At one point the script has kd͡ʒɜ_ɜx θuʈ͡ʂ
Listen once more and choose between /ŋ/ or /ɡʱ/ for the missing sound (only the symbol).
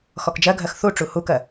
ɡʱ